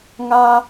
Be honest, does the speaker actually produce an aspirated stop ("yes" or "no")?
no